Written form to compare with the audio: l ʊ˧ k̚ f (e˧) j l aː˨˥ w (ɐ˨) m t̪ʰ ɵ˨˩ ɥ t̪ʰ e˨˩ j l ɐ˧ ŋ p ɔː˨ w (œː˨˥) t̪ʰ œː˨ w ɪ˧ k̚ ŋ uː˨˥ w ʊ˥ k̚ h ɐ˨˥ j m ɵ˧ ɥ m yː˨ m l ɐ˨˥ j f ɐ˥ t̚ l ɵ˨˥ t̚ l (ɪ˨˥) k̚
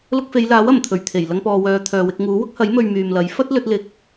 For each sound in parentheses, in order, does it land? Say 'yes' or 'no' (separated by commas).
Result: no, no, no, no